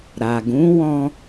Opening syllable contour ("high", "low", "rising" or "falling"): low